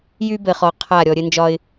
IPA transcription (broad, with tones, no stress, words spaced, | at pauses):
jy˦bɘ˨χɔ˨ qʰa˦˨ ɾʲɔ˨ɾʲɘ˦nd͡ʒɒ˦ɪ̯